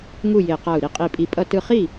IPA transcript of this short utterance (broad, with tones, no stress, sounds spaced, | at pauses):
ŋ u˥˩ j e˧˩ q a˧˩ u̯ ɾ i˧˩ qʼ i˧˩ pʼ i˧˩ pʼ ʌ˥˩ t ɯ˥˩ χ i˥˩